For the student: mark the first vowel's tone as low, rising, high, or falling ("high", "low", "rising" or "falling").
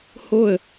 falling